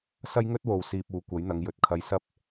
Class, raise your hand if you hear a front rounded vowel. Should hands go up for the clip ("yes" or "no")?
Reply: no